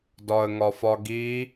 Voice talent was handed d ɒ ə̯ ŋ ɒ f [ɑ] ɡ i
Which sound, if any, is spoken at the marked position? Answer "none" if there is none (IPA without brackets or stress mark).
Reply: ɒ